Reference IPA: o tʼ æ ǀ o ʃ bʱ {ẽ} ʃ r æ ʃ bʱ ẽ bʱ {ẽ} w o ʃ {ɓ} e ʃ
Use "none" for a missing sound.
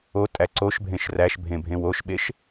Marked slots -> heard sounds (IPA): ẽ, ẽ, ɓ

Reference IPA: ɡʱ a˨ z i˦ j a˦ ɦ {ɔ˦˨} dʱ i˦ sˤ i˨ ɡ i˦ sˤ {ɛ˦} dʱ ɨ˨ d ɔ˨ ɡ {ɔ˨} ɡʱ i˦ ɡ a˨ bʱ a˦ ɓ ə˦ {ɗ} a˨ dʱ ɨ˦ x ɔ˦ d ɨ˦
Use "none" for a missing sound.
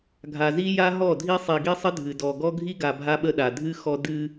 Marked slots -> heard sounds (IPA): ɔ˦˨, ə˦, ɔ˦, ɗ

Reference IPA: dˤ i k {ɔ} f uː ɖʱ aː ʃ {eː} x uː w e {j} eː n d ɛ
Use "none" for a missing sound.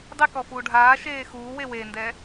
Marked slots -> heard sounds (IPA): ɔ, eː, w

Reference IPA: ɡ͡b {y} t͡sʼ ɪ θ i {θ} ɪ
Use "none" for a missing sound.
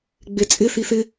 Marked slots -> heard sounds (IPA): e, θ

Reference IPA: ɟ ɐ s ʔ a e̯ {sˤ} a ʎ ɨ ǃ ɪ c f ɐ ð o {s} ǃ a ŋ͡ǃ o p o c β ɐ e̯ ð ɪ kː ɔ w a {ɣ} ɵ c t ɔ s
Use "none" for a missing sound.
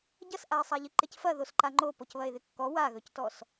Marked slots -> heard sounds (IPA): sˤ, s, ɣ

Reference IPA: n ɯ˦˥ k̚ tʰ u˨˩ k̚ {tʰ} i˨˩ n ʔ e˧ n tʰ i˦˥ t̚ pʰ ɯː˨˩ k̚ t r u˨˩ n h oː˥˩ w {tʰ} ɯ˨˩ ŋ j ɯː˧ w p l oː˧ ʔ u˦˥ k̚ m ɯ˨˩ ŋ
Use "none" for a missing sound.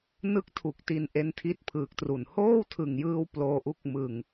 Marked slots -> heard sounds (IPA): t, tʰ

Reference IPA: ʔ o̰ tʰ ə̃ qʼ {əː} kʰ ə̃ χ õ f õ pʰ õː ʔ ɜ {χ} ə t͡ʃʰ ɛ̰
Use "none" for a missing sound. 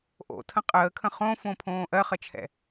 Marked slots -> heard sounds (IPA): əː, χ

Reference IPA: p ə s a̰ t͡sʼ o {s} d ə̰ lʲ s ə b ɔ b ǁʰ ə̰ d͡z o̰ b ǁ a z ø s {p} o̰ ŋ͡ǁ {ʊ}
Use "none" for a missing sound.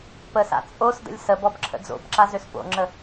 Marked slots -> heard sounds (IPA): s, p, ə

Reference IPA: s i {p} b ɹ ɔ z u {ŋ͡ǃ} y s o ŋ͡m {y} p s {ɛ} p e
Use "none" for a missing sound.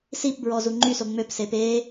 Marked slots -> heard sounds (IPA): p, ŋ͡ǃ, ø, e

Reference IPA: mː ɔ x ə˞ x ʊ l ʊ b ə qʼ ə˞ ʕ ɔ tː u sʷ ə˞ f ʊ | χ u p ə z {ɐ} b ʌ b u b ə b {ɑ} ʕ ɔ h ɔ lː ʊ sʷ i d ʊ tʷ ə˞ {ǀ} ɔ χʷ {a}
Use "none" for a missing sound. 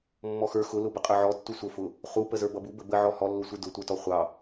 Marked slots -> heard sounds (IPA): ə˞, ə, t, ɑ

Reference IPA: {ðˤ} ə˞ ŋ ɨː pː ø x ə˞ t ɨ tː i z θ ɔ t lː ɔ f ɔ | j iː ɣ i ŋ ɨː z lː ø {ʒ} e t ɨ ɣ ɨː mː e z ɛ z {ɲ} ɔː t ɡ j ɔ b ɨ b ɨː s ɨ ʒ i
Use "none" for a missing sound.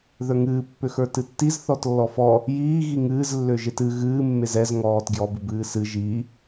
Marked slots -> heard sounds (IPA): ð, ʒ, ŋ

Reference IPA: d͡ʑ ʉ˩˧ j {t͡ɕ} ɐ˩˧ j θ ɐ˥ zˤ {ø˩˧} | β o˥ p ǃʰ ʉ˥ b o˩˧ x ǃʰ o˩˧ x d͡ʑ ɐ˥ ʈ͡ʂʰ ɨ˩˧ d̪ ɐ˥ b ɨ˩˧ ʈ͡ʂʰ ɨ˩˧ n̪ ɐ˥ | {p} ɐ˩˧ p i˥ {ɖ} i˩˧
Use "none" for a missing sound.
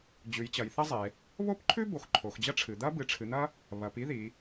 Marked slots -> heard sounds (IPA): t͡ɕ, e˩˧, β, ð

